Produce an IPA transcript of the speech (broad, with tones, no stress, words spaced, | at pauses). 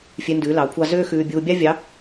fʲe˧˥ndʉː˩˥lɑ˩˥kʷʰɑ˥ zøː˥xʉː˧ bʲuː˧bʲɑ˥vʲɑ˧˥